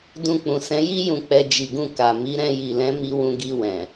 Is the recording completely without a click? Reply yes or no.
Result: yes